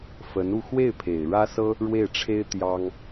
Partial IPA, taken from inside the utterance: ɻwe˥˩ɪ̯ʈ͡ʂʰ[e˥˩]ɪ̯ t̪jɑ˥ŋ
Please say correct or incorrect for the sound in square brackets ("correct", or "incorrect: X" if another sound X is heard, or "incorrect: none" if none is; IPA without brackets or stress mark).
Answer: incorrect: e˥